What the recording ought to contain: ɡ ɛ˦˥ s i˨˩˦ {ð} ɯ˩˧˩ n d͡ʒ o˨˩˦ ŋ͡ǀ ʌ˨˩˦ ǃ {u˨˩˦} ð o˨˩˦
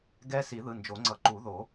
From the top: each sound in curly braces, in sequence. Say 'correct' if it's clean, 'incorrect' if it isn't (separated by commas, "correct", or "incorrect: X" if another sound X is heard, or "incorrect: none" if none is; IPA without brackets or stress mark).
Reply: correct, correct